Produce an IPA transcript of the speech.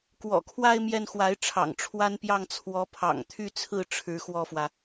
kwɔ̰˨˩kʰwa˥˧ɪ̯ mjɛ˥˩nxwa˧˥ɪ̯ʈ͡ʂʰɑ̰˨˩ŋ ʈ͡ʂʰwa˥npjɑ˥˩ŋ t͡sʰwɔ˧˥ pʰɑ̰˨˩ŋt̪ʰy˥˧t͡sʰɹ̩˥˩ ʈ͡ʂʰɻ̩˧˥xwɔ˥˩fwä˩

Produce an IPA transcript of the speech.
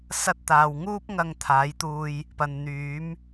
sɐ˧t̚t̪aː˨wŋuː˥p̚ ŋɐ˧ŋt̪ʰaː˨˥jt̪uː˧j | pɐ˨nn̪yː˨˥m

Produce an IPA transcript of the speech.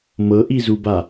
mɤʔizuba

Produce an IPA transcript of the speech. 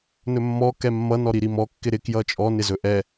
nɵmːɔ kɛmːʌ nɔɾiɾimɔ kːɪɾɪ kjʌt͡ʃʼɔ nɪzɵʔɛ

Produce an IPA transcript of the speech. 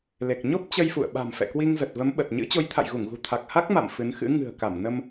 le˨˩k̚ ɲo˦˥p̚ t͡ɕə˧jfṵ˧˨ə̯ɓa̤˨˩m fɛ̰˧˨kwi˧ŋzə˨˩t̚və˨˦m ɓə˨˩t̚ɲɨ̰˧˥ t͡ɕo˨˦jt̪ʰa̰˧˨j ɣu˧˩ŋɣṳ˨˩ t̪ʰa˨˩k̚ha˦˥k̚ma̰˧˨m fɨ˨˦nxɨ̰˧˥ ŋɨ̤˨˩ə̯ka˧˩m nə˧m

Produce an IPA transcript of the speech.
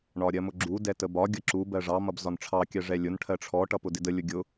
ɳɒɾʲɜmʊɡ͡ǁu dɛtəbɒ ɡʲʌǁu bɜʐɑ mʌbzɒnʈ͡ʂʰɑ kʲɜʐɛlʲʊn ʈʰɜʈ͡ʂʰɔ ʈʌpʊdɪdə lʲʊɡʲʊ

